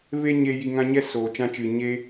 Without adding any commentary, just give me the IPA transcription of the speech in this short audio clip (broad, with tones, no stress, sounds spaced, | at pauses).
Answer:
v e˦ ɲ e˧ j i˧ ŋ ã˦ ɲ ɛ˦ s oː˨ t͡ʃ ã˧ t͡ʃ ɨ˨ ɲ e˦